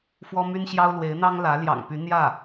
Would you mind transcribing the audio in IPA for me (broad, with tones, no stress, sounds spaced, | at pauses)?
f w ɔ˥ m y˥ n ɕ j ɑ˥ ʊ̯ l w e˧˥ ɪ̯ n̪ ɑ˥ ŋ l ä˧˥ l j ɑ̰˨˩ ŋ p y˧˥ n̪ j ä˥˩